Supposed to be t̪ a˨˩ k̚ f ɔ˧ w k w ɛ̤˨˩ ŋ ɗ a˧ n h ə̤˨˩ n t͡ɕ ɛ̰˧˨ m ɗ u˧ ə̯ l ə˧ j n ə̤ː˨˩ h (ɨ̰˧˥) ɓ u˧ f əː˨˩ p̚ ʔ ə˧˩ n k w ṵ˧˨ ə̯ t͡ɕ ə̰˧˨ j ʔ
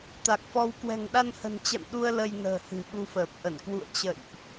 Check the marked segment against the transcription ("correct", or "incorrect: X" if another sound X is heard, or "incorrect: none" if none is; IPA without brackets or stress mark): incorrect: ɨ̤˨˩